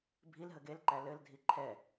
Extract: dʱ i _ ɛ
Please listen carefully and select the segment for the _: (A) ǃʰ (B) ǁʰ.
A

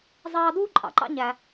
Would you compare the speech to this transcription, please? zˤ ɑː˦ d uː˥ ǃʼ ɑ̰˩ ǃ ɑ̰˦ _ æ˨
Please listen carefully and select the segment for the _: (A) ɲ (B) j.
A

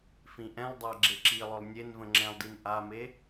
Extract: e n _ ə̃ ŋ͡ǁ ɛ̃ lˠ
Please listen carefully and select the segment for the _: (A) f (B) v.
B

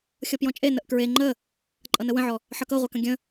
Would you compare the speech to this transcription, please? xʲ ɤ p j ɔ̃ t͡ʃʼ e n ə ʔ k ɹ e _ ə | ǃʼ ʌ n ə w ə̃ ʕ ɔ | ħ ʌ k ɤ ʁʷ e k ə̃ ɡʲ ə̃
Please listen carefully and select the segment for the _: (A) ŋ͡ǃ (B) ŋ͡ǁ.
A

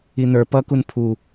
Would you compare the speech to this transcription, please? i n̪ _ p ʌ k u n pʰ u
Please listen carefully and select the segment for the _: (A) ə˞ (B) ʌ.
A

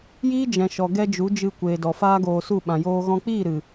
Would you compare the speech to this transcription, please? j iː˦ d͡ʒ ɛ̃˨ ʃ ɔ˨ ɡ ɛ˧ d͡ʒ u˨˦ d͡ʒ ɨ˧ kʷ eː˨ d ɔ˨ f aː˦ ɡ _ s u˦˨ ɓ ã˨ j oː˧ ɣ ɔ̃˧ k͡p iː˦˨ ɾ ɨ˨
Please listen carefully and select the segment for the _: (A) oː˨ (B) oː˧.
B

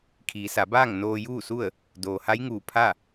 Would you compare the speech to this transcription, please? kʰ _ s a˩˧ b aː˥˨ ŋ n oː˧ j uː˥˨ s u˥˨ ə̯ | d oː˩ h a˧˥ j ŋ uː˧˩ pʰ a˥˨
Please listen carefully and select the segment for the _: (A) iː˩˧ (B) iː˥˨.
A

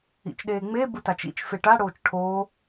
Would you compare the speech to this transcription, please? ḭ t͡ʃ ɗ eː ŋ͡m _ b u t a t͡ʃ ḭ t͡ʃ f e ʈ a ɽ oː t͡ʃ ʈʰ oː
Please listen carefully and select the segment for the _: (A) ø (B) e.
B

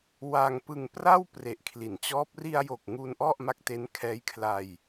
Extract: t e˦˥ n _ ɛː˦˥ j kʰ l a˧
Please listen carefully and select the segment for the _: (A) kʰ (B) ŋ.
A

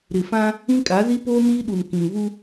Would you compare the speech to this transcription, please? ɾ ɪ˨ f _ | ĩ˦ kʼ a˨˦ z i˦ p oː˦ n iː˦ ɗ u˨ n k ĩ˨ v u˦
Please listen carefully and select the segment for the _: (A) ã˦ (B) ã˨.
A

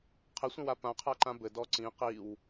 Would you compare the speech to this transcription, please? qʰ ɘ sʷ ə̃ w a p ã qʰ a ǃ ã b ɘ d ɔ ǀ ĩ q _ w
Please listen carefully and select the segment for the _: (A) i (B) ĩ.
A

